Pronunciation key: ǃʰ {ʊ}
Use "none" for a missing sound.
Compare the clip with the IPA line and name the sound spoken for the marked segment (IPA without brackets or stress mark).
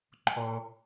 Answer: ɔ